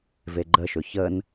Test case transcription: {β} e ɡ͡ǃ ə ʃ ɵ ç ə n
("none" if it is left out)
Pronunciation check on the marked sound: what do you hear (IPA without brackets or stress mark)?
v